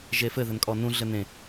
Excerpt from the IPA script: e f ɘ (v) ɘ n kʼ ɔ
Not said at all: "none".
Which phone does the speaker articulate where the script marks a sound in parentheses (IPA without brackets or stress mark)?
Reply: ð